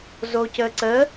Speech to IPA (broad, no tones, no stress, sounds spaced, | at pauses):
z o c ə ǀ ə